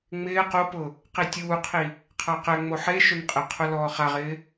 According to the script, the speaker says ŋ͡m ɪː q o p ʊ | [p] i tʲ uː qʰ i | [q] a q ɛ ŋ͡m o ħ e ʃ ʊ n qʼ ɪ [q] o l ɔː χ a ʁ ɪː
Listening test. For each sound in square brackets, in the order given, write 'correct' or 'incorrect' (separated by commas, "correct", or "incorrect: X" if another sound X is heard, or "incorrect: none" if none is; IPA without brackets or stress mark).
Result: incorrect: q, incorrect: qʰ, incorrect: qʰ